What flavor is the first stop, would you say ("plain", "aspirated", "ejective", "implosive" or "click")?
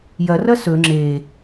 click